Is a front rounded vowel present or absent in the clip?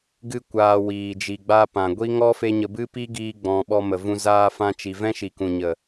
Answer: absent